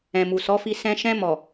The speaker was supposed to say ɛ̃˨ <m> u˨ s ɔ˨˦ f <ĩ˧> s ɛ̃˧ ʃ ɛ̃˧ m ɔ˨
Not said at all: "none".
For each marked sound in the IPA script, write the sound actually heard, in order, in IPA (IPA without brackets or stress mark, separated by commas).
m, i˧